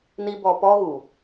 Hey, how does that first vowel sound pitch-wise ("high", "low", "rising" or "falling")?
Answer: high